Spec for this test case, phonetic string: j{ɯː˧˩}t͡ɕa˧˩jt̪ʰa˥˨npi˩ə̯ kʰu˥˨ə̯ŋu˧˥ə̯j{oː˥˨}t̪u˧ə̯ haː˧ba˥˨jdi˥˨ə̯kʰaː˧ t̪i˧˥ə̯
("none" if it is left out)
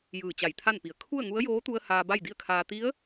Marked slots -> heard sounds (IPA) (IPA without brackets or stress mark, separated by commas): ɯː˧˩, oː˧˥